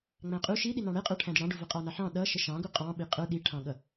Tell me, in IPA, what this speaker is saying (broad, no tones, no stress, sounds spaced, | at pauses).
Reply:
ŋ͡m æ̃ qʼ u ʃ i ɗ i n ɑ̃ ɽ ɛ qʼ ə˞ ʈʰ æ̃ d ɪ ɽ ɑ̃ ɖ u v ʌ qʼ ɑ n ɑ ħ ɑ̃ ɗ ʌ ʃ ə ʃ ɑ̃ ɡ u qʼ ɑ̃ ɓ i qʼ ə˞ ɗ i ʈʰ ɑ̃ ɠ ʌ